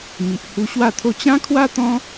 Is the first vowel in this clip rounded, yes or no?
no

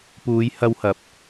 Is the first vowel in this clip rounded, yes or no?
yes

